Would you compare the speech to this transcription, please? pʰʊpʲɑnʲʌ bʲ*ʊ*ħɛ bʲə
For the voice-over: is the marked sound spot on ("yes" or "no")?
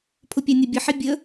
no